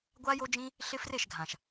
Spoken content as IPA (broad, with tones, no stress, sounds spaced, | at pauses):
ɡʷ a˦ j o˦ d͡ʒ ĩ˦ | ɬ ɪ˦ f r e˦˨ ʃ ɡʱ ã˨ ʃ